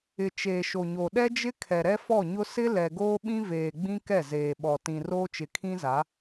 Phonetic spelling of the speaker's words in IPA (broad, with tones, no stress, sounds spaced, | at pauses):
ɪ˨ t͡ʃ eː˨ ʃ o˨ ɲ o˨ ɗ ɛ˦ d͡ʒ ɪ˦ kʰ ɛ˨ ɾ ɛ˦ f ɔ˦˨ ɲ ʊ˦ s ɪ˦ l ɛ˨ ɡ oː˦ ɓ ĩ˦ v eː˨ ɡ͡b ĩ˦ k ɛ˦˨ z eː˨ ɓ ɔ˨ t ĩ˨ r oː˦ t͡ʃ ɪ˨ kʰ ĩ˦ z a˨˦